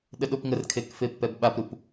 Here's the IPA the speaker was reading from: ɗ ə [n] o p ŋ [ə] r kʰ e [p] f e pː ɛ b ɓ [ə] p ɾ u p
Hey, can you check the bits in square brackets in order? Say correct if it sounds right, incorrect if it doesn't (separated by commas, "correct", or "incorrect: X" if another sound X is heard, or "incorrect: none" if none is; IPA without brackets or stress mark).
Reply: incorrect: ɗ, correct, incorrect: k, incorrect: a